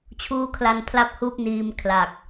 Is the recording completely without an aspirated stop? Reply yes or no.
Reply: no